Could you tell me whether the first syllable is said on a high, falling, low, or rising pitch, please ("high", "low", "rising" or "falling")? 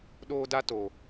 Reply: high